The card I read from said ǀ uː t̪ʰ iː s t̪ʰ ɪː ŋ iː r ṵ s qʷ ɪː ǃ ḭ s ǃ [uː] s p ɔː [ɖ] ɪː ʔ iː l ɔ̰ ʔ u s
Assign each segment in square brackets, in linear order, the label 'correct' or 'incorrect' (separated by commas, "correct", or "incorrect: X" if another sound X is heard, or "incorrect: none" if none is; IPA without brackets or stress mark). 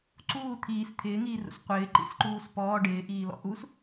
correct, correct